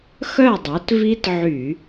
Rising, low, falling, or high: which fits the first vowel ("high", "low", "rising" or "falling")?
falling